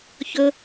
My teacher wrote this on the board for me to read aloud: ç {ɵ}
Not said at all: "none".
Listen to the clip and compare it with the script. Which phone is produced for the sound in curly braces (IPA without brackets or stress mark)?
ɵ